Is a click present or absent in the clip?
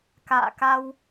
absent